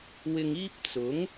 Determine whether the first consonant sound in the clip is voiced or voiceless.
voiced